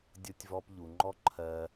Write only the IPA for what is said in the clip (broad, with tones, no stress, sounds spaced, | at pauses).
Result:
dʲ o˦ tʲ v ɔ˧ p ʎ u˨ ŋ͡ǃ ɔ˦ ǃʰ ɜ˧